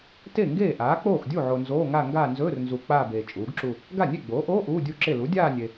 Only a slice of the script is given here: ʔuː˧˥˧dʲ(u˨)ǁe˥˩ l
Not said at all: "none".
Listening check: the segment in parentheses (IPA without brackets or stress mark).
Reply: u˥˩